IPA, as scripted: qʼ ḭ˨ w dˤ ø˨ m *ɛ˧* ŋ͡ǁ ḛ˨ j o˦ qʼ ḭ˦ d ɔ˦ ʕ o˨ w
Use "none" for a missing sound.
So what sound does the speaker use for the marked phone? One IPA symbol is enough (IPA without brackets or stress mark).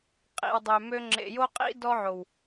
ø˧